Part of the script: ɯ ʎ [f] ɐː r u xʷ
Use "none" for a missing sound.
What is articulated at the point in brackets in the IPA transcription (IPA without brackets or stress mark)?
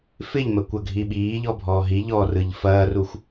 f